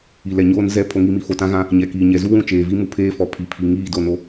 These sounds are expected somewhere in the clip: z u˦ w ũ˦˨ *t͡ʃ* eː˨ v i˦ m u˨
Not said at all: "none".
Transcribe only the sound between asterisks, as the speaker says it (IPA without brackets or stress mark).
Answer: t͡ʃ